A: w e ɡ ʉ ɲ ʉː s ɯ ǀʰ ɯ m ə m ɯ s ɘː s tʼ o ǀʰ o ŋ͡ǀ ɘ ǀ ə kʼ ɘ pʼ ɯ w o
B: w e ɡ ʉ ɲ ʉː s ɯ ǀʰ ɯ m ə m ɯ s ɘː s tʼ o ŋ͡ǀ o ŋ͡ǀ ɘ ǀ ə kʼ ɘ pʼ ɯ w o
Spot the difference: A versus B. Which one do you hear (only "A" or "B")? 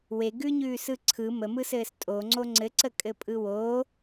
B